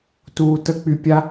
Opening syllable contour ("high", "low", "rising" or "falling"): low